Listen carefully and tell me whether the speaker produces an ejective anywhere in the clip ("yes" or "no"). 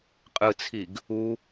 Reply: yes